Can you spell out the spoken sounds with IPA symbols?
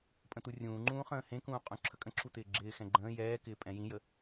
pʼ ə̃ t̪ u rʲ ũː ŋ͡ǃ ũː χ ə̃ː h ẽ k ũː qʼ ũ ǁʰ ə kʼ ə̃ ǁʰ u t̪ ɪː ɡ͡ǁ ɪː x ɛ̃ ɡ͡ǃ ə̃ː j ɛː k ɪː pʼ ɛ̃ j ĩ j ə

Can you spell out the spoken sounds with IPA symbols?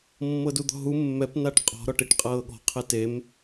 mː ɤ d u d̪ ɔ̤ ɦ u mː ɛ p n a ʈ qʼ ɔ̤ ɾ ɔ ʈ i ʈ qʼ ɤː ɠ ɔ̤ qʰ ɛ t e m

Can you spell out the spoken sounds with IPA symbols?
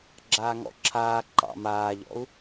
ɡ͡ǁ aː ŋ ɔ̰ ǁʰ aː ǃ ɑ̰ m aː ʎ ɔ̰ u̯

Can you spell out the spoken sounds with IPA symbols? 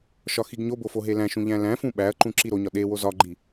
ʃ ɒ x i ɡ ɲ o b o f o ɦ e l æ̃ ʃ ũ ʎ æ̃ l æ̃ f ũ ɓ æ ɐ̯ ǃ ũ ǁ i ɾ o ɲ ɒ ɗ e w o z ɒ ɡ͡ǃ i

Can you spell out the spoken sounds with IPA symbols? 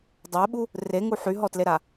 dˤ ɛ ɓ u | r e ŋ u ħ y ɦ ɔ t l e ɾ a

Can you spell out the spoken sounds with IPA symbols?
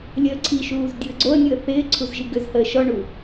lʲ əː ǀʰ i ʃ uː z dʲ u ə̯ ɡ͡ǀ o ə̯ nʲ u ə̯ θ ɪː ǀʰ u z ʒ i ɡ ʏ z h əː ʃ ɔ ɳ u

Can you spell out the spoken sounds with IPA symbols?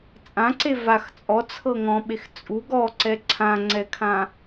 t͡sʼ ã ǀ e v a x t͡sʼ ɔ t͡sʰ ɤ ŋ ɔ̃ ɓ e x t͡sʼ u ɡ ɔ ǀ ɛ ǀʰ ã ŋ͡ǀ ɛ kʰ ã

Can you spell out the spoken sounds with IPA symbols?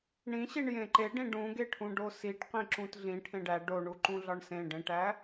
ɳ ĩ ɕ i ɳ j ẽ ǃ e ɖ ĩ ɖ ũ ɡ e ʈʰ ũ ɖ o s i ʈ q ĩ ǁ ũ t ɮ ĩ ʈʰ ẽ ɖ æ ɖ o ɳ u ǃ ũ ɮ ɒ ɳ s ẽ ɖ ẽ ʈ æ

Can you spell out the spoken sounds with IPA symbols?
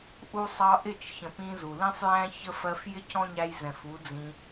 ʔ u˧ sˤ ɑ˧ ʔ ɪ˦˨ t͡ʃ ç ə̃˨ p ĩ˧ z u˨ l ĩ˦ sˤ j æ̃˦ ç ə˦ f ɜ˧ f j ɪ˦ cʰ ɔ̃˦ ɲ æ˧ j z ɛ̃˨ f u˨˦ d͡z ĩ˧

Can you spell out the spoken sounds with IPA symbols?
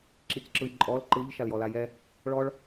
ǁ i c ǁ ɯ j ǃʼ ɔ l ǃ ɯ ʎ ʃ a l j ɔ l a j ɛ | ɭ ɔ ɭ

